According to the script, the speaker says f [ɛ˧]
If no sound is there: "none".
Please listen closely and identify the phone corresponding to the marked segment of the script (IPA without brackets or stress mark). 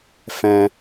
ɛ̃˧